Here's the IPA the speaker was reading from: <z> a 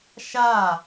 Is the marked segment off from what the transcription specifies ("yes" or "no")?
yes